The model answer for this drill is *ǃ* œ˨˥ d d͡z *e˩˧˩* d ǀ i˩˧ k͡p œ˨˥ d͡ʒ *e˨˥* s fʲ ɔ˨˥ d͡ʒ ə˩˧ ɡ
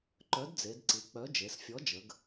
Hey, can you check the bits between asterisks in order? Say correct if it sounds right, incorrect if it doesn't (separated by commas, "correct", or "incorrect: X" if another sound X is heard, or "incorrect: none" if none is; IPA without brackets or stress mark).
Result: correct, incorrect: e˩˧, incorrect: e˩˧